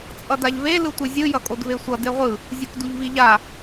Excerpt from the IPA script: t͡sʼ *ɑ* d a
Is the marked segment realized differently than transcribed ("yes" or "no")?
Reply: yes